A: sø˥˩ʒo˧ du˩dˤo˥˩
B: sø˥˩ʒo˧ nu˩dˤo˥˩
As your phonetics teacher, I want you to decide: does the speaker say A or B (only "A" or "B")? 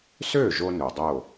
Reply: B